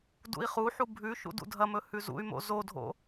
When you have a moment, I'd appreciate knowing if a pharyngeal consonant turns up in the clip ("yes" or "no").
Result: yes